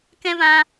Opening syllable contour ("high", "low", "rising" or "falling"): high